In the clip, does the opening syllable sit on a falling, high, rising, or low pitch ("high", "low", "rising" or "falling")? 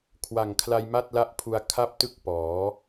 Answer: low